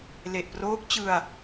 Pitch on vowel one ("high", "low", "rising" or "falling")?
low